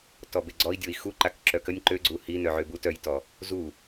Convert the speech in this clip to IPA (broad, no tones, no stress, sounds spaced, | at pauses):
t ɔ b e ɡ͡ǀ ɔ i̯ dʲ o i̯ x u ǃ a k ǁ œ k ə nʲ ǃ ø ɡ͡ǀ u h i n œ ʕ ø b u t œ j t ɔ | z u